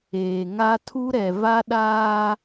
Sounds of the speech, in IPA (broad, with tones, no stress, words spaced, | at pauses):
eː˨ŋa˦ tʰu˦ɾɛ˨ va˦ɗaː˦